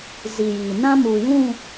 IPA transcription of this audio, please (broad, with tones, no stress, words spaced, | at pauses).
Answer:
zi˨jiː˨ nã˦muː˨jũ˦˨